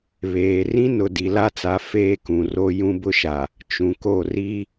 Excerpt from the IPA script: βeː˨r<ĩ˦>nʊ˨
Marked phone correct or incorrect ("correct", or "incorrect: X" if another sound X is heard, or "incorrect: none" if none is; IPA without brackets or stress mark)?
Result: correct